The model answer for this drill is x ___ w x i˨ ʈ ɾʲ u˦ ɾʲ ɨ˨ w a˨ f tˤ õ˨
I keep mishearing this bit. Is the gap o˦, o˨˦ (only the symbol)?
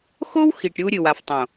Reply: o˦